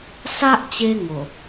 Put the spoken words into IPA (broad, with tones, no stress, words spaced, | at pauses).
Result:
sa˦ʔt͡ɕe˧ ŋo˨˩